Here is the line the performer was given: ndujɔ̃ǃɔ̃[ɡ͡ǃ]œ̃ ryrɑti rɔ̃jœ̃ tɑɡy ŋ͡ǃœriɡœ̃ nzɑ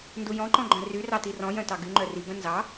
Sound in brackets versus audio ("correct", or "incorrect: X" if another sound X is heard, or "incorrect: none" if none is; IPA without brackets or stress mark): correct